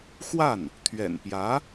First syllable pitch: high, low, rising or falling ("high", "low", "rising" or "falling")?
falling